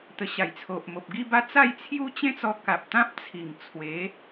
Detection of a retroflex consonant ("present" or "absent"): absent